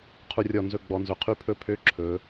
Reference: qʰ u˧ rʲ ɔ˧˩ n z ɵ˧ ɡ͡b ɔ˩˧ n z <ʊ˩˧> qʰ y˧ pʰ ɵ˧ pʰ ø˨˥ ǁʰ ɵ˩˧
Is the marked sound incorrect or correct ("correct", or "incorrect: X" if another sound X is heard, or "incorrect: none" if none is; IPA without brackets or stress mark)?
incorrect: ɵ˩˧